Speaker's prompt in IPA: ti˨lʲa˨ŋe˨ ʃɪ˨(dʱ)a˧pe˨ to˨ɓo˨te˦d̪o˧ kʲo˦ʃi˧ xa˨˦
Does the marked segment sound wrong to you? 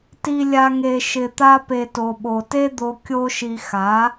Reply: yes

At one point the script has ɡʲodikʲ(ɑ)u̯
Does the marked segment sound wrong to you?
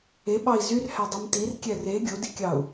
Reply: no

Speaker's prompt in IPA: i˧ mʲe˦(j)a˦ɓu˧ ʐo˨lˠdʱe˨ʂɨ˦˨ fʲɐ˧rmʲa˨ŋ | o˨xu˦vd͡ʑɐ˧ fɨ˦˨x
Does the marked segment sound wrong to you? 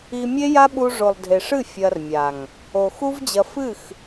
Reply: no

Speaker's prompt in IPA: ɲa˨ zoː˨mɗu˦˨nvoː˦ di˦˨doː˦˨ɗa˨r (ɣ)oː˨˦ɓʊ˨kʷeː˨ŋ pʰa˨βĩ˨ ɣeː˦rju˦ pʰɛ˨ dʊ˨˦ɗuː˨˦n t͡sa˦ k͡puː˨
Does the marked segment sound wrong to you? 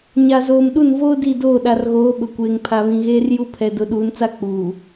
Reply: no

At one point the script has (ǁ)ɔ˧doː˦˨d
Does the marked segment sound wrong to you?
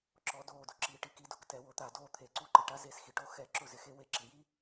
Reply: no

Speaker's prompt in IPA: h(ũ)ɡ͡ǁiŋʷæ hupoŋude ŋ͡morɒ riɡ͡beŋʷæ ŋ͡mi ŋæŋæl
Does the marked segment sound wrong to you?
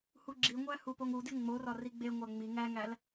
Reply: yes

